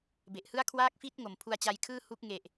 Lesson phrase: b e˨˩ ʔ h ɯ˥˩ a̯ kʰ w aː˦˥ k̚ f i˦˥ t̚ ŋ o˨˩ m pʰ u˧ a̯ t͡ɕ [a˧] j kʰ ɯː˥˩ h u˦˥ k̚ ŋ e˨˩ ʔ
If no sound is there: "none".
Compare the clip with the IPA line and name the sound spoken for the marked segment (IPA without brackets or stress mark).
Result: a˧